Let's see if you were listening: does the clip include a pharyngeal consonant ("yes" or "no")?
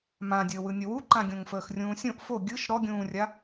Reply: no